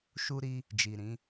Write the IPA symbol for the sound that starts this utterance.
ʃ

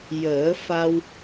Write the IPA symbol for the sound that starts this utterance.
j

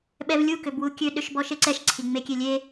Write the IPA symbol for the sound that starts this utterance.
ɓ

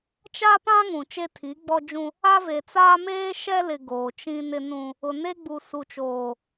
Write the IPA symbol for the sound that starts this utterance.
t͡ʃ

